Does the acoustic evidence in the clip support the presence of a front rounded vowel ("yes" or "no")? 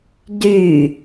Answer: yes